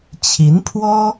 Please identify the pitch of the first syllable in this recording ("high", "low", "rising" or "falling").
rising